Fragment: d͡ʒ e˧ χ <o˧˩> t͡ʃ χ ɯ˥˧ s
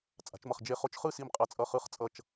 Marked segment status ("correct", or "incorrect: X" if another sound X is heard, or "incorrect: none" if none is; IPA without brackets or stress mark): incorrect: o˧